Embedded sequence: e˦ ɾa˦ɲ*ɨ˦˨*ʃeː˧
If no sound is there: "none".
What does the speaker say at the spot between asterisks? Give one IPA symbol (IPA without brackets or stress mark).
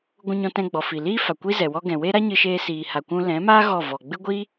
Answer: ɨ˧